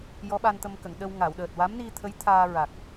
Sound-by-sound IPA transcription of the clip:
j ɔ˧˥ ɓ a˧ n t̪ ə˧ m k ə˨˩˨ ŋ ɗ ə˧ w ŋ a˨˩˨ w ɗ əː˨˩ t̚ w a˧˥ m n i˧ t̪ʰ ə˧˥ j t̪ʰ aː˧ ɹ a˨˩ k̚

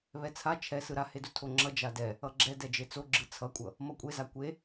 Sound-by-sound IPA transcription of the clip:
β ɛ t͡sʰ a t͡ʃʰ ɛ s ɯ ɾ a h e d u tʰ o ŋ͡ǁ ʌ d͡ʒ a d ɛ | ʌ ɡ͡ǁ ɛ d ɛ d͡ʒ e t͡s o ɡ͡ǁ ɯ t͡sʰ ʌ kʷʼ ʌ | m ʌ kʷʼ e z a kʷ e

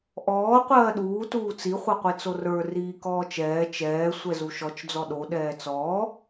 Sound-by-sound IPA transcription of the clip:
ʔ ɔː qʷ ɜː ɗ uː t uː t͡s i χʷ ɛ qʷ i t͡s o r ə˞ r iː k ɔː t͡ʃ ɛː t͡ʃ ɛː sʷ ɛ z u ʃ ɔ t͡ʃ d͡z ɔ ɗ o ɗ ɛː t͡s ɔː

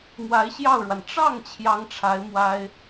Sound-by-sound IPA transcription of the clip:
m w a˧˥ ɪ̯ ɕ j ɑ˥˩ ʊ̯ ɻ w a˩ n ʈ͡ʂ ɑ˥˩ ŋ t͡ɕʰ j ɑ˥ ŋ ʈ͡ʂʰ a˧˥ ɪ̯ m w a˥ ɪ̯

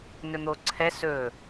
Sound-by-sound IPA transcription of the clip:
n ɵ n̪ o ǀʰ ɛ s ɵ

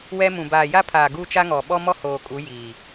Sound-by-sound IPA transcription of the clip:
w ɛ˦ m ũ˨ b aː˨ j a˦ pʰ aː˨ ɡ u˦ t͡ʃ a˦ ŋ ɔ˨ ɓ ɔ˦ m ɔ˦ h oː˨ kʼ u˨˦ j iː˨

